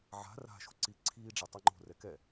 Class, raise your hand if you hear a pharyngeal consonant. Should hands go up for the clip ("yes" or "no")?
yes